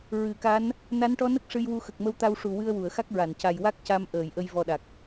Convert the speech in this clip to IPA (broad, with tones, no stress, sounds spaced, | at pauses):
ɹ ɨ˨˩˨ k a˧˥ n | n a˧˥ n ʈ ɔ˧˥ n ə˦˥ k̚ ʂ ɨ˧ j w u˧ x ə˨˩ k̚ m ə˧˥ w t̪ a˧ w ʂ u˨˩ w ɨ˧ ə̯ w u˨˩˨ ə̯ x a˦˥ k̚ ɹ a˨˩˨ n c a˨˩ j w a˦˥ k̚ c a˧ m ʔ əː˨˩˨ j ʔ ə˧ j v ɔ˨˩ ɗ a˨˩ k̚